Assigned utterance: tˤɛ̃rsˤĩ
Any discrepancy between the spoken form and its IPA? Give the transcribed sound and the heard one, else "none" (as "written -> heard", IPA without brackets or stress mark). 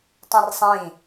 none